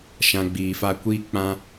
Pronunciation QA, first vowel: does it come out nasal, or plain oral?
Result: nasal